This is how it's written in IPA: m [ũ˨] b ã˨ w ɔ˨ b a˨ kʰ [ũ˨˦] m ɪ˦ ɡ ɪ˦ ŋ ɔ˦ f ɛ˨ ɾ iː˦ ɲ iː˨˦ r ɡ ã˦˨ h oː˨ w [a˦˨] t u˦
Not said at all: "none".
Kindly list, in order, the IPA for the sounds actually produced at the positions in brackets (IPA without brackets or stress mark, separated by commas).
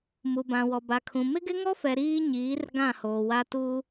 u˨, ũ˨, a˦